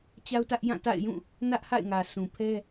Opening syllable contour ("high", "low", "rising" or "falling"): high